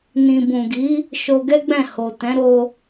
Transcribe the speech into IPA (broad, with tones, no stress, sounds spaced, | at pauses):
n ĩ˨ b ũ˨ ɡ i˨˦ | ʃ o˧ ɡ ɛ˦ ɡ͡b ɛ̃˦˨ h o˨ t ɛ̃˨˦ ɾ o˧